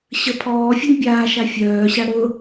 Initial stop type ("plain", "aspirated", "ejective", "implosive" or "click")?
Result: aspirated